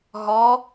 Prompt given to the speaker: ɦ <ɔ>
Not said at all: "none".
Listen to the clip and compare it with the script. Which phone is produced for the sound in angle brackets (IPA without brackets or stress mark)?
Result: ɔ